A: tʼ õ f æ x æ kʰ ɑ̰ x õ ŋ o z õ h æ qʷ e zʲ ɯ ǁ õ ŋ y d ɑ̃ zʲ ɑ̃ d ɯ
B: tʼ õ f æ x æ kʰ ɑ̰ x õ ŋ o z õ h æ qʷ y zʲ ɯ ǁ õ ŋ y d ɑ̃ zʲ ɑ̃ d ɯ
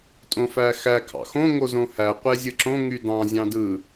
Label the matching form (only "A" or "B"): A